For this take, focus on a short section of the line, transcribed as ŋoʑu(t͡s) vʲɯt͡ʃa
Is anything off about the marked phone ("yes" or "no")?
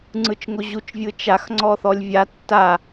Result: yes